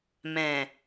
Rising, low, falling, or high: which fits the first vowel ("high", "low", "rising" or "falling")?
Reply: low